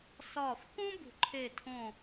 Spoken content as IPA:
s ɒː˧˩ f k ũ˥ b ṳ˨˩˦ ǃʰ eː˧˩ tʰ õː˧˩

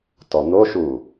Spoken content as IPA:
t ɔ n̪ o ʃ u

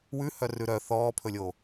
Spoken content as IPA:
w ʉ h œ r ʉ ɾ œ θ ɔː pʰ ɵ lʲ oː

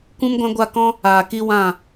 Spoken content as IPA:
kʷ ũ˦ m ɡʷ ã˦ ɡʷ a˦˨ k ɔ̃˦ | aː˨ k i˦ w ã˦˨

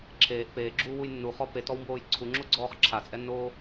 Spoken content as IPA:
ǁʰ eː ʔ p eː ɡ͡ǁ uː w u j nː u χ ɔ p e t ɔ w m b oː j ǀʰ u ŋ͡ǁ o ɡ͡ǀ ɔː χ ǁʰ a t͡sʼ ɛ nː oː

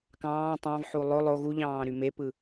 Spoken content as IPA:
k ɑ̃ː tˤ ɑ̃ v ħ u lˠ o lˠ o ɣ u ʎ ɑ̃ː ɾ y m e p ɯ

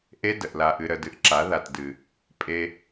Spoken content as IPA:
ʔ e˦ d ə˨ ʔ l a˧ ʔ ɨ˧ ɾ ə˨ d ɨ˨ ʔ ǁ a˨˦ ð a˨ t d ɨ˨ | pʼ e˦

